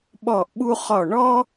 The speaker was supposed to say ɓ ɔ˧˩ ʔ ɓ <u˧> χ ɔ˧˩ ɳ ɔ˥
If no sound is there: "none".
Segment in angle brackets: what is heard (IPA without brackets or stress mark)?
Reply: u˧